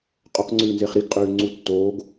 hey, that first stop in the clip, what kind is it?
ejective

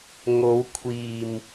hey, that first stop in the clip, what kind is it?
aspirated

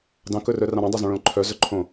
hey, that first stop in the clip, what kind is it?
plain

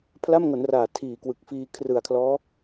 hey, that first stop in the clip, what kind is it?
aspirated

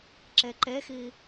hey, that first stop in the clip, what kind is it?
click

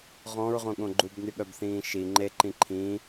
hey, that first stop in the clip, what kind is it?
implosive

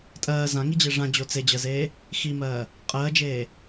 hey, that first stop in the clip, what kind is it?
ejective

